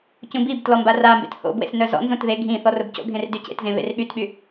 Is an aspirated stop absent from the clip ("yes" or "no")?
yes